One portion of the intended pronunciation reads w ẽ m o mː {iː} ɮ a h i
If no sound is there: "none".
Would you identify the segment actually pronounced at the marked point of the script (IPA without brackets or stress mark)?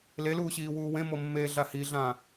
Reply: eː